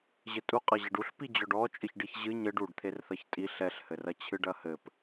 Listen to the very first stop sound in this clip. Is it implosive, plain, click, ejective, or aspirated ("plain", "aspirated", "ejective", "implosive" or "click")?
ejective